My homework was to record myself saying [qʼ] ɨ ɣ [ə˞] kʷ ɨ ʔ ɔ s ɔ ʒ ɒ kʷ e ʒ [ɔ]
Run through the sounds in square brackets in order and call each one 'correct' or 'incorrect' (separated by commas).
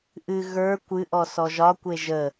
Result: incorrect, correct, incorrect